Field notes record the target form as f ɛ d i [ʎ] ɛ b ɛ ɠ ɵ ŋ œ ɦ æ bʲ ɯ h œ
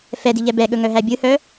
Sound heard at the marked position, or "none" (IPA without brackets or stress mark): ʎ